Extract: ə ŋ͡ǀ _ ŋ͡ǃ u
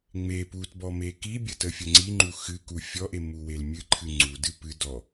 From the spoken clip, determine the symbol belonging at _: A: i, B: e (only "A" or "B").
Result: A